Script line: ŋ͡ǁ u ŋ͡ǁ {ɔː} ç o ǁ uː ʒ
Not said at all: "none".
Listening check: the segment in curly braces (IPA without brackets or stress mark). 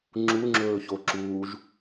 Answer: ɵː